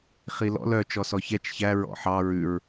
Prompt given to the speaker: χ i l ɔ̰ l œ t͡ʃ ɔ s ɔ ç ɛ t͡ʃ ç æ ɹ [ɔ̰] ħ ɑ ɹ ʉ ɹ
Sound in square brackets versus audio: correct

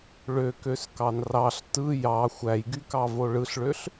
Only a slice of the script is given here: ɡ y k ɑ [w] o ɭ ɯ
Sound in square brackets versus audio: incorrect: v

